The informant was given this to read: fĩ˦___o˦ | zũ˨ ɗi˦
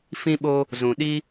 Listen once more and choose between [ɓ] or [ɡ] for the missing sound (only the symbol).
ɓ